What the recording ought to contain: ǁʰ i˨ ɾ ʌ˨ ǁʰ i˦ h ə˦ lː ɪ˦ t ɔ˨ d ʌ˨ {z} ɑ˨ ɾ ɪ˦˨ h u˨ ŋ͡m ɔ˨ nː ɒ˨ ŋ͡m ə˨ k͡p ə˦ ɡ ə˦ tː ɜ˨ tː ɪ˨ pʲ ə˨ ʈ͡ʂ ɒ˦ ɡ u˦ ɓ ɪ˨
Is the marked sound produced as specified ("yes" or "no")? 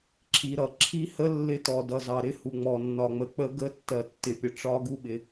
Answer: yes